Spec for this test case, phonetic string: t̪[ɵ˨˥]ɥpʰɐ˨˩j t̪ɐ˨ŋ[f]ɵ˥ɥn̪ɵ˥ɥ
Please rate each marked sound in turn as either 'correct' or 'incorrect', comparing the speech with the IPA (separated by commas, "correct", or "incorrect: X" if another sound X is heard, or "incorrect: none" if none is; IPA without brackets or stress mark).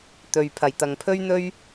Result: incorrect: ɵ˨, incorrect: pʰ